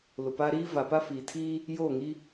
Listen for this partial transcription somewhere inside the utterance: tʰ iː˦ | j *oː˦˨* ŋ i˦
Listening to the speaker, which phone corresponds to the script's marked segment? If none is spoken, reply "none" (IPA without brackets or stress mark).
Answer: oː˦˨